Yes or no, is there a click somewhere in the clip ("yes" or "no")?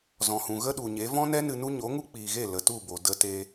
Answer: no